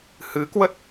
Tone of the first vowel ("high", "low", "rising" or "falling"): rising